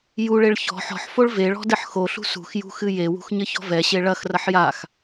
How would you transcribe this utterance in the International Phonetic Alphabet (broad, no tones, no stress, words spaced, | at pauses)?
juɭeɭ çɔ̤ ħɔ̤ħfoɭ veɭɔ̤ dɘħxoɬṳ sṳxjṳ xɨjewṳx ɲɘçɔ̤vɛɕe ɭɐxrɐħ jax